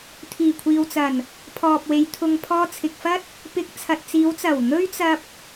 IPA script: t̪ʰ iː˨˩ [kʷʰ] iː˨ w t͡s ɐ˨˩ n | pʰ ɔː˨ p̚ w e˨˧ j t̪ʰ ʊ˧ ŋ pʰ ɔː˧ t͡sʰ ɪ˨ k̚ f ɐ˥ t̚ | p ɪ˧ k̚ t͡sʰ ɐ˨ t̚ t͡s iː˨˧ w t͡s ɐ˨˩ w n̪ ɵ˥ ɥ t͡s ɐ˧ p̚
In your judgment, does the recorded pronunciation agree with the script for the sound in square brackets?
yes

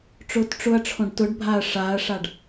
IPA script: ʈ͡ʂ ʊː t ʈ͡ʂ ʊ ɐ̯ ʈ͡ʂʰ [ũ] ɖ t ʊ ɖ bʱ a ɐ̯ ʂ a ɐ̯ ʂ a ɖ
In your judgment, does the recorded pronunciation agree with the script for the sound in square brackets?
no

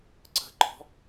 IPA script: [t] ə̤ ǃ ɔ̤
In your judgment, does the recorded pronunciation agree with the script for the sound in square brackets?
no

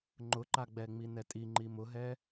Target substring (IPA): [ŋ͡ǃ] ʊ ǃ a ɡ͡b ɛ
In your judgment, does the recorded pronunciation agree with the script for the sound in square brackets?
yes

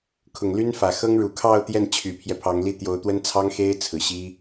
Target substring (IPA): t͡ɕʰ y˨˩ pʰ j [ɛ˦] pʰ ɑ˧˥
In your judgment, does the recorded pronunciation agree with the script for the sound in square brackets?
yes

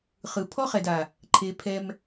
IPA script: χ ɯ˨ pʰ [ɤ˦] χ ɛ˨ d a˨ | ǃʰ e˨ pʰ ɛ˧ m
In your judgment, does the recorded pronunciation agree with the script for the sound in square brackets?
no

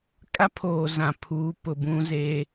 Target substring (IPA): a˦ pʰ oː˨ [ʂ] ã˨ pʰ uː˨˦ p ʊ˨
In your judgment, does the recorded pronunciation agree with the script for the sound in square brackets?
no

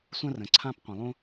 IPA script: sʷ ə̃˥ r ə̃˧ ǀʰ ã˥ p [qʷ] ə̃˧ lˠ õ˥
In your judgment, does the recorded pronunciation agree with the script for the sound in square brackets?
yes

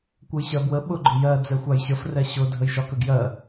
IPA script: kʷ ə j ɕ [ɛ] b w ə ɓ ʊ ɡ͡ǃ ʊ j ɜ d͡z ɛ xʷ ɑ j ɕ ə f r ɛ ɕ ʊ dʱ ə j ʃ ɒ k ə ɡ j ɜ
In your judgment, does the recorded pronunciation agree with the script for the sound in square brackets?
no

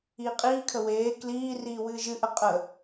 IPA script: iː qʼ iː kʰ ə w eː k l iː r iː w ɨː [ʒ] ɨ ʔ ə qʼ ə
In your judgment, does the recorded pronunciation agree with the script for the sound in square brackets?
yes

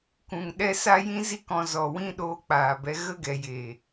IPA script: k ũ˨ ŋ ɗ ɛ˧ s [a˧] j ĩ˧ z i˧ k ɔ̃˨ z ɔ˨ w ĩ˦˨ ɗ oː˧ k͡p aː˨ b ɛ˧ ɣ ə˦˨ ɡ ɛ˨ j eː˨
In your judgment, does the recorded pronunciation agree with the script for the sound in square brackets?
yes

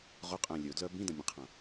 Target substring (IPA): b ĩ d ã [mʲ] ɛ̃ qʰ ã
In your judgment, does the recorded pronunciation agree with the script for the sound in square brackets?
yes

